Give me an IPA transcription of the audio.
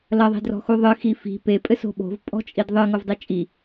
l ɐ ðˤ i̤ d r ɔ̤ x u ðˤ ɨ x i f i̤ p e pʼ ɘ s o̤ ɓ o̤ v pʼ ɔ̤ t͡ʃʼ i d ðˤ ɨ ŋ o v dˤ i t͡ʃʼ i

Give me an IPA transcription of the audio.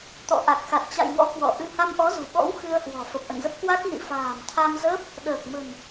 t̪ ɔ̰˧˨ ʔ a˨˩ k̚ x a˨˩ t̚ t͡ɕ a̰˧˨ j ŋ ɔ̰˧˥ k w ɔ̰˧˨ ʔ ɨ˧ h a˧ m ʔ ɔ˨˦ z ṳ˨˩ ɓ ɔ̰˧˥ w x ɨ˧ ə̯ h w ɔ̤˨˩ f ə˨˩ p̚ ʔ ə̰˧˨ n z ə˦˥ p̚ k w a˦˥ k̚ n ḭ˧˨ f a̤ː˨˩ m t̪ʰ a˧ m z əː˦˥ p̚ | ɗ əː˨˩ k̚ m ə̤˨˩ n

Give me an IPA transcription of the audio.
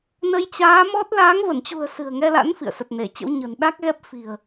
n ə˧ j t͡ɕ aː˨˦ m ɔ˦˥ t̚ l aː˨˦ ŋ v ə˧˩ n t͡ɕ ṳ˨˩ ə̯ s ɨ̤˨˩ ə̯ ŋ ɛ˧ l a̰˧˥ n f ḭ˧˨ ə̯ s ə˨˩ t̚ n e˧˩ t͡ɕ ə̰˧˥ w ɲ ə̤˨˩ n ɗ a˦˥ k̚ ɣ ɛ˦˥ p̚ f i̤˨˩ ə̯

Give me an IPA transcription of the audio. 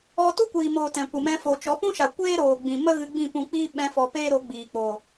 ɔ˧ t u˦ kʷ iː˨ m oː˨ t ɛ̃˨ kʷ ɨ˨ m ɛ̃˧ f o˨ t͡ʃ ɔ˨˦ p ũ˦ ʃ a˨ kʷ eː˦ ɾ oː˨ ɡ͡b ĩ˨ m ə˦ ɣ ɨ˧ ɡ͡b ĩ˦˨ p ũ˧ k͡p iː˦ ɓ ɛ̃˦ f ɔ˧ p eː˦ ɾ o˨˦ ɡ͡b iː˨ k͡p o˨

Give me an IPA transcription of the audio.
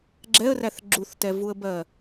ɡ͡ǁ ɛ ə̯ r æ θ ɡ͡ǁ u θ t ɛ v u ə̯ b ɜ

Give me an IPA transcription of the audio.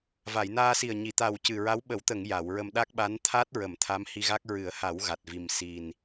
v a˨˩˨ j n aː˧ s i˨˩ ə̯ ɲ i˨˩˨ t̪ a˨˩ w c ɨ˨˩ ɹ a˧˥ w ɓ ə˨˩˦ w t̪ ə˨˩˨ ŋ j a˨˩˨ w ɹ ə˧ m ɗ a˦˥ k̚ ɓ a˧˥ n t̪ʰ a˦˥ t̚ ɹ ə˨˩˨ m t̪ʰ a˧˥ m h i˧ ɣ a˦˥ k̚ ɹ ɨ˨˩˦ ə̯ h a˨˩˦ w ɣ a˨˩ t̚ v i˨˩ m s i˨˩ n

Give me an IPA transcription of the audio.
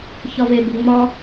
ç ɒ v e b o ŋ͡m ɒ

